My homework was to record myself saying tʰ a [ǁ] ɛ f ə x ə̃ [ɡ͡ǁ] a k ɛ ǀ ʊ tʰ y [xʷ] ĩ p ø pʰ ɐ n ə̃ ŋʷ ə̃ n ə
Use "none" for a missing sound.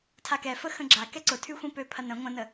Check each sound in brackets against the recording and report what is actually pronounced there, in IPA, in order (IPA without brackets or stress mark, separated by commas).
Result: k, ɡ͡ǁ, xʷ